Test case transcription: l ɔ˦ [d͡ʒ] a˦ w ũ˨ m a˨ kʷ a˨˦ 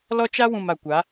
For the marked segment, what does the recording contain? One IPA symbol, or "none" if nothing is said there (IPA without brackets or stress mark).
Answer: t͡ʃ